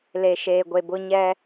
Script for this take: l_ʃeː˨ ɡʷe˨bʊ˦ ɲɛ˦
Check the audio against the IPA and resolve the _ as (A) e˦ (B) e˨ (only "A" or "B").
B